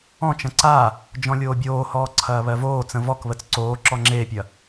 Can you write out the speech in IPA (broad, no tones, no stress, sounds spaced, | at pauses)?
ɔ̃ t͡ʃ ɐ̃ ǀ a | d͡ʒ ɔ̃ lʲ oː bʲ oː h ɔː ǀʰ ɐː β ɜ v oː t͡s ə̃ v ɔ k β ə t͡s ǀ oː ǁ ɔ ŋ͡ǁ eː pʲ ɐ